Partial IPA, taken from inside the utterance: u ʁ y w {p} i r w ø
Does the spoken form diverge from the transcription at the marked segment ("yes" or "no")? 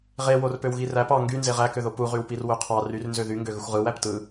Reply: no